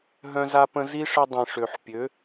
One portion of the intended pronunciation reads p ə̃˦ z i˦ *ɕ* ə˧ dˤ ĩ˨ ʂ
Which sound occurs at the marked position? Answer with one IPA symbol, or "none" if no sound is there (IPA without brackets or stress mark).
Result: ʂ